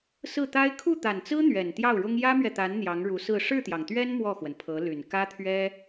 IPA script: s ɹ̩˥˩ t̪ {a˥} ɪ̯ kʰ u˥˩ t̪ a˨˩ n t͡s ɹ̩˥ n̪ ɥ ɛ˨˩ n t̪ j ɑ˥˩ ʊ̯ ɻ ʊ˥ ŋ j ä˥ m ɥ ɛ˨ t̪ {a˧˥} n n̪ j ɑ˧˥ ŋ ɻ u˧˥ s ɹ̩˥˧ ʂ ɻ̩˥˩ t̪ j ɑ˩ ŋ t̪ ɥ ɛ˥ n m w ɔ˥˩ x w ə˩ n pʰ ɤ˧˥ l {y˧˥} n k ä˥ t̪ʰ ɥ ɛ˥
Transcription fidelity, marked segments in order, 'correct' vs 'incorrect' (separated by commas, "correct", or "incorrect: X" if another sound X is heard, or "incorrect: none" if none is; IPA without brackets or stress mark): correct, correct, incorrect: y˨˩